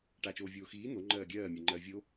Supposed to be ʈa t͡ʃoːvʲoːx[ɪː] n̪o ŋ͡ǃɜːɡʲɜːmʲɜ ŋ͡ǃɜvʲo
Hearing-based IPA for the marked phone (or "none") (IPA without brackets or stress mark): iː